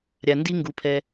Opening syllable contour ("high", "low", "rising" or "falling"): low